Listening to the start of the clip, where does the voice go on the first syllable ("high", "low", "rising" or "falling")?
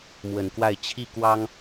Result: low